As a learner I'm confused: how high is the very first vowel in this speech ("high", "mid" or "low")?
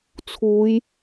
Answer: high